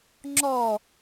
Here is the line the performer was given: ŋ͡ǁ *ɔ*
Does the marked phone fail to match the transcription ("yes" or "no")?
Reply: no